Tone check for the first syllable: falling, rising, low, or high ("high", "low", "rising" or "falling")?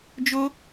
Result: high